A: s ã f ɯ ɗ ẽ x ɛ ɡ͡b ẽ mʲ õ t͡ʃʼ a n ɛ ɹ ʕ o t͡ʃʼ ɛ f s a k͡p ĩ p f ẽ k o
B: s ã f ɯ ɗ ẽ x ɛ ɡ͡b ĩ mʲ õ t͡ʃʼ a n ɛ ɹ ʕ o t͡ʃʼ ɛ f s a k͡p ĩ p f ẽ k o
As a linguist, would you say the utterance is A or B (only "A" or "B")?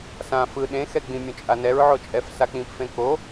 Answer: B